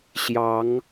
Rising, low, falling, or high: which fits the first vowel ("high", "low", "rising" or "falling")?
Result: rising